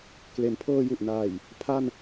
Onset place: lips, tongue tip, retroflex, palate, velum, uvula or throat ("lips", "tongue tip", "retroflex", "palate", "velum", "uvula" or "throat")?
velum